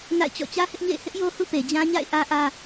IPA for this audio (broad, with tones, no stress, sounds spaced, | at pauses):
n a̰˦˨ ɪ̯ t͡ɕ ɔ̰˦˨ t͡ɕ ä˦ h ɪ˦ ʔ ɲ ḛ˦˨ ɪ̯ h ɪ˦ ʔ j o˦ h ṵ˦˨ p e˨ d͡ʑ ã˦ ɲ a̰˦˨ ɪ̯ ʔ ä˦ ʔ ä˦